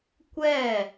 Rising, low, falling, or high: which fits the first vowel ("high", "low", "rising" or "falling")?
falling